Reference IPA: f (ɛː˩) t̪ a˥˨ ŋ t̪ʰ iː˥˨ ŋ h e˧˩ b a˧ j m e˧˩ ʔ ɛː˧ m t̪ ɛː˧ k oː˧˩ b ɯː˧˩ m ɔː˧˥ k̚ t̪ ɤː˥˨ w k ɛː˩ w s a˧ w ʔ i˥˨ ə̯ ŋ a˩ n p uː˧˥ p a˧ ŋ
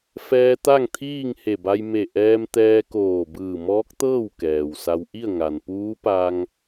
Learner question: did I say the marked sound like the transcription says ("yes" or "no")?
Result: no